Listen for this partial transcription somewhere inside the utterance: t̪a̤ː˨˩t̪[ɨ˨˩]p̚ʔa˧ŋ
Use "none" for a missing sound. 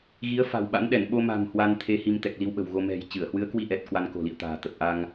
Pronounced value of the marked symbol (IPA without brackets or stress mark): ə˨˩